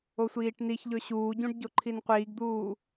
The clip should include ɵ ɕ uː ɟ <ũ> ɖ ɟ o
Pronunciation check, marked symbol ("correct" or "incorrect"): correct